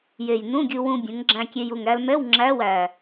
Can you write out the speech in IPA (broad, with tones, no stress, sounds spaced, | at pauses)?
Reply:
j e˨˩ j n ũ˧˥˧ ɡʲ u˧ w ũ˧ bʲ ũ˩˧ ŋ ɡ͡ǁ æ̃˧ kʲ e˧ j u˨˩ ŋ ɾ æ˧ l m ɛ˧˥˧ w ŋ͡ǁ æ˧˥˧ w æ˨˩